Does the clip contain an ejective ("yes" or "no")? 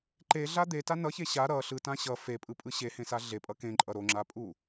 yes